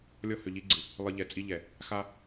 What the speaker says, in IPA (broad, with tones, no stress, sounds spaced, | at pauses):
lʲ ɔ˦ h ʏ˨ ʎ i˦ ɡ͡ǀ ɯ˨ | lˠ ɯ˨ ʎ ɛ˨ t͡sʼ i˦ ʎ ɛ˨ | x a˦